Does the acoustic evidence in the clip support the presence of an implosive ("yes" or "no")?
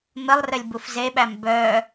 yes